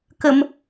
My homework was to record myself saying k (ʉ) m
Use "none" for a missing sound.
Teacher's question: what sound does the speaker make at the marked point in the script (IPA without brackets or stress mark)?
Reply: ə